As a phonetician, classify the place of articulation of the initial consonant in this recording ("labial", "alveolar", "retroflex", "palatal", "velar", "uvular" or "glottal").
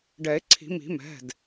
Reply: retroflex